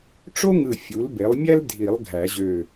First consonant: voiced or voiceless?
voiceless